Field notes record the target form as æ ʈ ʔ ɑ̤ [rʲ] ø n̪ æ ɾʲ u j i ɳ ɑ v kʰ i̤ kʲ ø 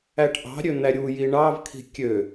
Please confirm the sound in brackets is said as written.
no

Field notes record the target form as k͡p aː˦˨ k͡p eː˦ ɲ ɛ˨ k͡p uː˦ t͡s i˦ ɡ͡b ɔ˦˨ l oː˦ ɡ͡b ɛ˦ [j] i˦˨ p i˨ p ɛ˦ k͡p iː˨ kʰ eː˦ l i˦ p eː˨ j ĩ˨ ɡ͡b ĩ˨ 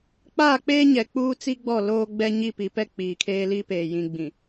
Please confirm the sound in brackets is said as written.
no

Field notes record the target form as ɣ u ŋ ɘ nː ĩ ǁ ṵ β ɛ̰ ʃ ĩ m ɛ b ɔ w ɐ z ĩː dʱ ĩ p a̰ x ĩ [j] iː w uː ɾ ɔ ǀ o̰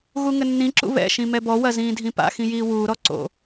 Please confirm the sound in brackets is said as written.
yes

